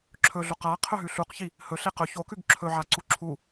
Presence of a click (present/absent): present